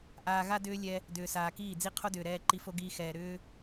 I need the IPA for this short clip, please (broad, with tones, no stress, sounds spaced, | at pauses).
ʔ aː˧ ɣ a˦ d ʏː˦ lʲ ɛ˧ | d ʏː˨ s aː˨ k iː˦˨ d͡z i˦ qʰ o˦ d ʏː˨ ɾ ɛː˧ ǃ i˧ f o˦ ɡ iː˧ x ɛː˨ ɾ ʏː˦